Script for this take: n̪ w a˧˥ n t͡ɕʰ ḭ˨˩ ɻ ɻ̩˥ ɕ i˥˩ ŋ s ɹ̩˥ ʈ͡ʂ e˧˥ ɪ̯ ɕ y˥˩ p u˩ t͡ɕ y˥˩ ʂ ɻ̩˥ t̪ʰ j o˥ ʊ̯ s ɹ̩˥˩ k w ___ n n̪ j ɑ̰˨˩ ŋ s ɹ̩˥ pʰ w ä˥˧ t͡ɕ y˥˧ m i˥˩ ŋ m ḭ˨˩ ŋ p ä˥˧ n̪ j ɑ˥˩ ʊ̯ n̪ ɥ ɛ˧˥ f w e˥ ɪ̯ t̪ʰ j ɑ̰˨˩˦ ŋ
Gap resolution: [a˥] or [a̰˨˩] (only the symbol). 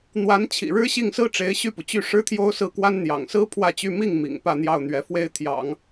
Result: a˥